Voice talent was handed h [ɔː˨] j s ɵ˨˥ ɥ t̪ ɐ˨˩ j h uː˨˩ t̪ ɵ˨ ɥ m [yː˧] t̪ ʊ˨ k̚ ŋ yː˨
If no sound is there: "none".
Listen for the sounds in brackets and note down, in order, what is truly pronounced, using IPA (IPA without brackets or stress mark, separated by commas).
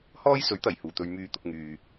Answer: ɔː˥, yː˨